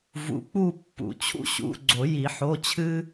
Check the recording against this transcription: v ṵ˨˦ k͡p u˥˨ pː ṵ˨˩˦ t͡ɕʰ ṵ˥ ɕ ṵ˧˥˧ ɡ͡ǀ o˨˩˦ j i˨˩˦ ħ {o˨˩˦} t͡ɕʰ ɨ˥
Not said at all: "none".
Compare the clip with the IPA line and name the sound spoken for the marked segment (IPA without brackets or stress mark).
o˧˥˧